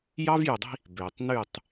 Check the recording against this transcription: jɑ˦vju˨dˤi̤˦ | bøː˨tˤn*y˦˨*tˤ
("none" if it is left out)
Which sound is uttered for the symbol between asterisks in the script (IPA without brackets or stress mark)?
y˦˨